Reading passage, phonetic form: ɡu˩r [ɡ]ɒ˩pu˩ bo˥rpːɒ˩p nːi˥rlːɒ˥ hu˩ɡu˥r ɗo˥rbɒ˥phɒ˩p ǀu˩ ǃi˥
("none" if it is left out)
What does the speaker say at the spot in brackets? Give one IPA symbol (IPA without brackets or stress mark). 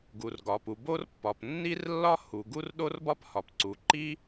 ɡ